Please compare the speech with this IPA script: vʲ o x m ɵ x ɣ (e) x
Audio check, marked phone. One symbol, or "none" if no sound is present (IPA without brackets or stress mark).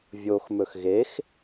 e